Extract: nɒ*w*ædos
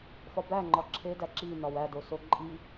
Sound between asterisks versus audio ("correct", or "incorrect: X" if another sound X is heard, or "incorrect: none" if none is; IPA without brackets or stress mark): correct